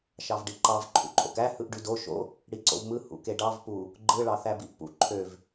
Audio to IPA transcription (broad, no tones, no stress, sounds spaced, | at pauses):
ʃ ɑ v ɖ i ǃ ɑ v ǃʰ ṵ ǃʼ o̰ k æ h ɯ ʔ ɖ y d o ʃ o̰ | ɽ i ǀ o̰ v m ɯ h ṵ k e ɖ ɑ v p u | ɡ͡ǃ ɯ ɭ ɑ θ æ b i ʔ p ṵ ǃʰ ø v